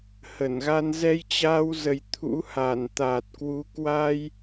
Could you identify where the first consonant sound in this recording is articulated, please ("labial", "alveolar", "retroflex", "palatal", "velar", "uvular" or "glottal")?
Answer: glottal